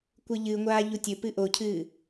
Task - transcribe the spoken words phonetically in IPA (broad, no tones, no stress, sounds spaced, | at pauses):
kʷ ɨ ʎ ɨ ŋʷ aː ʎ u tʲ ɵ p ɨ ʔ o cʰ ɨː